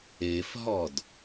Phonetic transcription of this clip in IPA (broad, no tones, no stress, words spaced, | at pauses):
efɦɔd